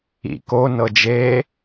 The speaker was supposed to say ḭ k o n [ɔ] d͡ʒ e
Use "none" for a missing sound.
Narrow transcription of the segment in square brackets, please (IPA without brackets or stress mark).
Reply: ɤ